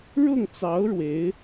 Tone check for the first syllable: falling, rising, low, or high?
falling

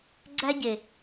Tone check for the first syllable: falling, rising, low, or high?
high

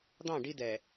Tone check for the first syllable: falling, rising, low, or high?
falling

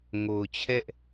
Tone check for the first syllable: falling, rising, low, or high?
low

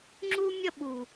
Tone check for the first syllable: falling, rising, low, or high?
high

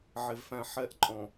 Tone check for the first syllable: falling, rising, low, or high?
low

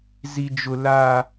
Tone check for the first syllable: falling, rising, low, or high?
high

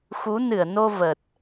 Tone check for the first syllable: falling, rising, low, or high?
rising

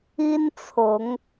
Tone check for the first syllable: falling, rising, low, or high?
high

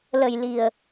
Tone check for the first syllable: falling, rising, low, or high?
low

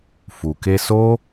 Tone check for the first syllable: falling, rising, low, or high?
low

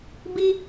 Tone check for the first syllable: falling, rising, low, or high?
high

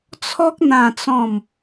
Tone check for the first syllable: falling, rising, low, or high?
high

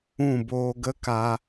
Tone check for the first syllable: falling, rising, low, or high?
falling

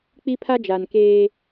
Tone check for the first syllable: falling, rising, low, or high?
high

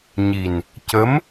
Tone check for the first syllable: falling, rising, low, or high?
low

